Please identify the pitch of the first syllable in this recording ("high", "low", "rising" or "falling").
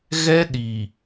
high